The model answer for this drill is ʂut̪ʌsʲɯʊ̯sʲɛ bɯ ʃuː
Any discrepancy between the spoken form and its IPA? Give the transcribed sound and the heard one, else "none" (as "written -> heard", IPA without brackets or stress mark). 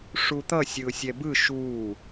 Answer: none